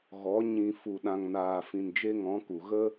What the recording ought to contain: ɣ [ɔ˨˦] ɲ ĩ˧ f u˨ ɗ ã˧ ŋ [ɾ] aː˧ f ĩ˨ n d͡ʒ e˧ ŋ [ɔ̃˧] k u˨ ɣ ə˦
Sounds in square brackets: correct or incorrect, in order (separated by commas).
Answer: correct, incorrect, incorrect